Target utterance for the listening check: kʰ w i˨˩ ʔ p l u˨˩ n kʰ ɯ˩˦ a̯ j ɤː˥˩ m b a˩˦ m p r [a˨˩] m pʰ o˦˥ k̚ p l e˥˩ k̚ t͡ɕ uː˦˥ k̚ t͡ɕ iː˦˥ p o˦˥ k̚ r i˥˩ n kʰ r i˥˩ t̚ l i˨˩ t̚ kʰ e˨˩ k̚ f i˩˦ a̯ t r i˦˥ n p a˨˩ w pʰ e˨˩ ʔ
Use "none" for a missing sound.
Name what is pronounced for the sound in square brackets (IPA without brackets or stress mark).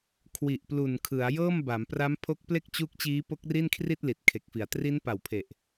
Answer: a˦˥